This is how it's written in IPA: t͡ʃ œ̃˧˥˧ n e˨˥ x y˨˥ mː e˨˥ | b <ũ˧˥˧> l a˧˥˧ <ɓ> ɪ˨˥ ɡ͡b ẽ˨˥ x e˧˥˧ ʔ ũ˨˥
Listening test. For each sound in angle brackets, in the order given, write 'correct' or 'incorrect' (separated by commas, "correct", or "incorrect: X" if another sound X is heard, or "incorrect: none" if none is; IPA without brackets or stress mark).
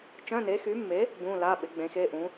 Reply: correct, correct